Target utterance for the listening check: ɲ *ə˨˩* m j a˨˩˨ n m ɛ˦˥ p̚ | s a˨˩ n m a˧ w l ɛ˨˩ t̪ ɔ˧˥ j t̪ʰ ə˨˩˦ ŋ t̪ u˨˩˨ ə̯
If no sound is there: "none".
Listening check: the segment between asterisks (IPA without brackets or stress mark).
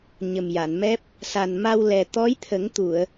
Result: ə˨˩